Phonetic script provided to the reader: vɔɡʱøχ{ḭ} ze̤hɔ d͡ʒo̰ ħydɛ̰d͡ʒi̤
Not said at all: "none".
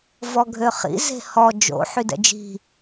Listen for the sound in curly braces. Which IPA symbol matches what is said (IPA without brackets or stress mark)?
ḭ